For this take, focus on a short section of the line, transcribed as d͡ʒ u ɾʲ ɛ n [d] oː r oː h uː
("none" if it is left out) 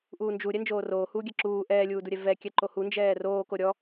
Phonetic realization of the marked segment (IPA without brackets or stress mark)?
d͡ʒ